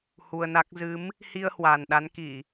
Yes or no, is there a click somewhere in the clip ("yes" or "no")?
no